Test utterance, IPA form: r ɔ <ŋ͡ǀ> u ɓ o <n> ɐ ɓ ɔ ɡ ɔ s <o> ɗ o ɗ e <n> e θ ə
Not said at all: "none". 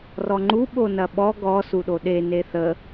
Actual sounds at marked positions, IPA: ŋ͡ǃ, n, u, n

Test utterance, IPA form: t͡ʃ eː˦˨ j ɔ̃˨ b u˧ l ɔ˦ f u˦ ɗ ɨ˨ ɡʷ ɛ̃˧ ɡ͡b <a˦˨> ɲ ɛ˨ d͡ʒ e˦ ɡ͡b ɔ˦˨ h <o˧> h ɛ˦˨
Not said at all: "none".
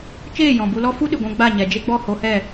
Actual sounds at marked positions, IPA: a˦˨, o˧

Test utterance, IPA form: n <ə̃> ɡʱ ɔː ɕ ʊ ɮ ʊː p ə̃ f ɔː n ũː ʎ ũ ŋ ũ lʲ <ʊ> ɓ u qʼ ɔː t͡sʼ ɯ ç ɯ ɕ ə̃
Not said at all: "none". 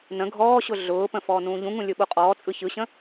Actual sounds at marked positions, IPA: ə̃, ɯ

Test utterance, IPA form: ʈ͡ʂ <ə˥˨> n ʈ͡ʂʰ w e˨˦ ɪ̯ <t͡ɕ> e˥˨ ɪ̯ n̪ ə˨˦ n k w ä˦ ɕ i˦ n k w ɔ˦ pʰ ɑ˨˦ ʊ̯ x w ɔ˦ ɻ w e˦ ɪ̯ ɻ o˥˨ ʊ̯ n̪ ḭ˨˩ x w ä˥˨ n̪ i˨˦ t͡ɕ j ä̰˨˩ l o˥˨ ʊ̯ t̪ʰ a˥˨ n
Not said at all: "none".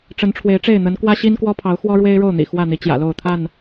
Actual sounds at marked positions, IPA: ə˨˦, ʈ͡ʂ

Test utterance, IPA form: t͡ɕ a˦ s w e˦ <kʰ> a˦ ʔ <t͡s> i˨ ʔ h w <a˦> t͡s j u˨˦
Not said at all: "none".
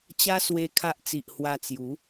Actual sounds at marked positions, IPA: kʰ, t͡s, a˧

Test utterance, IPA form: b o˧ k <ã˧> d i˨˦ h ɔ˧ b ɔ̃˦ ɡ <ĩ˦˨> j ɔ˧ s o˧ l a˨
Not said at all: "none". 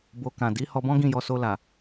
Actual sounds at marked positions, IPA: ã˨, ĩ˦˨

